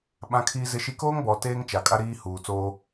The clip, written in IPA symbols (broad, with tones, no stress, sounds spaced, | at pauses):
ɓ ã˦ kʰ iː˦ z ɪ˦ ʃ i˦ k oː˦ ŋ b ɔ˨ t eː˦ ŋ t͡ʃ a˨ kʼ a˦ ɾ iː˦ h uː˨ t͡s oː˦